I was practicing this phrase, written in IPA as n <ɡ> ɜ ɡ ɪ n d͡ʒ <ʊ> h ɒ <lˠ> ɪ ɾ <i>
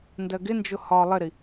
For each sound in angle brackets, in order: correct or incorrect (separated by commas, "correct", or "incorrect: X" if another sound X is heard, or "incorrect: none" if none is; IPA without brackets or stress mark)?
incorrect: d, correct, correct, correct